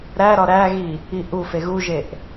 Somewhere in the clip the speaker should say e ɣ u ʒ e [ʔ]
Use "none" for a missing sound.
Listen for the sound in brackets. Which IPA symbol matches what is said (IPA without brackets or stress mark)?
ʔ